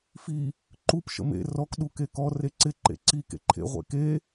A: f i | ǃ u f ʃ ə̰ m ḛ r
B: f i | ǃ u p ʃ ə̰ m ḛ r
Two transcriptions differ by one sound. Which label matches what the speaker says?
B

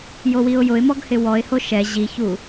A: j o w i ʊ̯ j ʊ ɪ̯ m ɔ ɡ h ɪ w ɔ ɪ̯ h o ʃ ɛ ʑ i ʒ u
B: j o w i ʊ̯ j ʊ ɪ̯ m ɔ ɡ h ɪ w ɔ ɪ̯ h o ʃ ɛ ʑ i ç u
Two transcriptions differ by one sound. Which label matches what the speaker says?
B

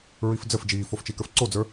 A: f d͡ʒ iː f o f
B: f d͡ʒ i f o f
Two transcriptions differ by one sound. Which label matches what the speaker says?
A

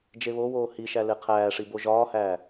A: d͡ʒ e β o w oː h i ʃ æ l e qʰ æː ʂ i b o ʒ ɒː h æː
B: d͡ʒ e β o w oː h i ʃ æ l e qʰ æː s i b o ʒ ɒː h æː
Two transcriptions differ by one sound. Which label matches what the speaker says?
A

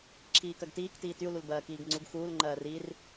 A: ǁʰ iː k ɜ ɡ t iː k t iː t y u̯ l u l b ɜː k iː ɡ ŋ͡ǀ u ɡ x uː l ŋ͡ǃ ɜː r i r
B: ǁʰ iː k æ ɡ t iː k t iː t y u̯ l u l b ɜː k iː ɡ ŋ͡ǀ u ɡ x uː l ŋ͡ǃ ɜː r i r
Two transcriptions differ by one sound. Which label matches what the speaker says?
A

